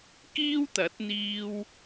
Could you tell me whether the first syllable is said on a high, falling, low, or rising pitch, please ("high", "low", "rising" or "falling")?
high